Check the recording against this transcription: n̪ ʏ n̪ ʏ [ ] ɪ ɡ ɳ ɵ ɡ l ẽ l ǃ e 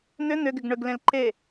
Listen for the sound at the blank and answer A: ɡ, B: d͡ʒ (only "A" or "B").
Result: A